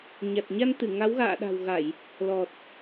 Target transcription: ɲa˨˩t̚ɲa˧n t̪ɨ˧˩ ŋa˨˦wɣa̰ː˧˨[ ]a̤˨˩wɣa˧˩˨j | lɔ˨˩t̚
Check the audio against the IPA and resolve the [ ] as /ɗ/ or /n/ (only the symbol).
ɗ